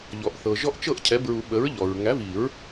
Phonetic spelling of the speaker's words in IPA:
ʎ ɔ˩ ʔ θ ɤ˩ ʒ ɔ˦ ʔ t͡ʃ ɤ˥˨ ʔ cʰ ɛ˩˥ b ɹ u˨˩˦ ɓ ə˩˥ ɹ ʎ ɔ˩ ɹ ŋ æ˩˥ v i˨˩˦ ɹ

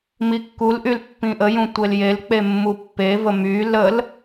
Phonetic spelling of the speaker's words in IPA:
m i kː u l ʔ y l pː ĩ ʔ ə j ũ tʷ e l j e l k͡p e mː u pː e v ə m y l ə l

